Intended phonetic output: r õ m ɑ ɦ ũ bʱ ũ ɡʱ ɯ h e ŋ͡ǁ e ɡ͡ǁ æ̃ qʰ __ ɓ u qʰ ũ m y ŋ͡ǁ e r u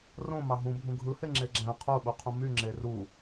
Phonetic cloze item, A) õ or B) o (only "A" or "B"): B